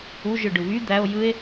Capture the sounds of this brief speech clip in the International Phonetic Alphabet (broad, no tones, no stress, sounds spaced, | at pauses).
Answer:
u ʒ ɯ ɖ ɯ β y d̪ æ o̯ j ɯ e̯